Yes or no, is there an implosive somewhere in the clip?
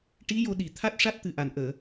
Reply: yes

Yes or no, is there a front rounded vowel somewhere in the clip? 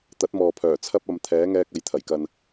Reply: yes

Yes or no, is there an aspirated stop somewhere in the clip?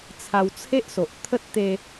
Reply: yes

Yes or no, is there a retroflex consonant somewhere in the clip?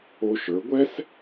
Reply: no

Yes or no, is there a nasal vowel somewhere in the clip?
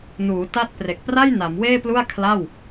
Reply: no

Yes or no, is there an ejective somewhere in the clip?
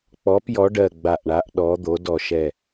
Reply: no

